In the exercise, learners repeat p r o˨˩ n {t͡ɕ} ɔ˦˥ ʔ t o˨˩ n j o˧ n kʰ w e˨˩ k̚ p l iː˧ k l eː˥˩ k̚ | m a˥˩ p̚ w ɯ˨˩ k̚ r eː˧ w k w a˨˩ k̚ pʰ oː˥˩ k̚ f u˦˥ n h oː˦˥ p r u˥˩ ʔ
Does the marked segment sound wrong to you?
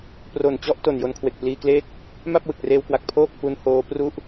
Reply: no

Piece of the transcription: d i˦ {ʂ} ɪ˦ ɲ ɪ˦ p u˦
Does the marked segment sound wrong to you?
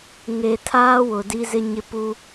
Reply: yes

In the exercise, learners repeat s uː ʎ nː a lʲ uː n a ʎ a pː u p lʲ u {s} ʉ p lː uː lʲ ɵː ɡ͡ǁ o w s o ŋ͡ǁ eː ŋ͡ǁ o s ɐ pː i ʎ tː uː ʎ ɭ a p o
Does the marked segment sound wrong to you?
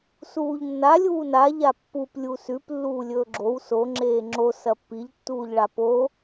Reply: no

